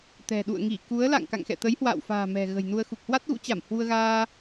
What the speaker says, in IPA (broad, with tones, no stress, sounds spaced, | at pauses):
t̪ ɛ̤˨˩ ɗ ṵ˧˨ ə̯ ŋ i˧˩ k u˨˦ ə̯ l a̰˧˨ ŋ k a̰˧˨ ŋ x ɛ̰˧˨ t̪ ə˨˦ j h w a̰ː˧˨ w f a̤ː˨˩ m ɛ̤˨˩ ɣ ə̤˨˩ j n u˧ ə̯ x u˨˩ k̚ h w a˦˥ t̚ ɣ ṵ˧˥ t͡ɕ a˧˩ m h w u˧ ə̯ ɣ aː˧